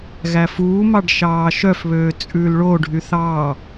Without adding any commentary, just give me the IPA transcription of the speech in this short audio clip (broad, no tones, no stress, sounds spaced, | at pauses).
ɣ æ f uː m ɑ ɖ ʃ ɑː ʃ œ f β øː t͡sʼ ʉː l ɭ o ɖʱ y θ ɑː